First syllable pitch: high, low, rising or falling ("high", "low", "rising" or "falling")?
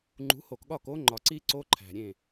rising